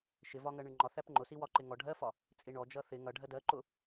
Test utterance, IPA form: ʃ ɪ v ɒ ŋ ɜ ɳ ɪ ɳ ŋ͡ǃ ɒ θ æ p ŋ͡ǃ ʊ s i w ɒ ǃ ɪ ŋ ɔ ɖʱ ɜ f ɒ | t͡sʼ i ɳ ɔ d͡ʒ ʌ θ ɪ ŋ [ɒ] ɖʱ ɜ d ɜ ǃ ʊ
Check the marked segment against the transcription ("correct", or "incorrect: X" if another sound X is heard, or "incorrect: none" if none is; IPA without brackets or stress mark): incorrect: ʌ